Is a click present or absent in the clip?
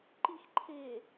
present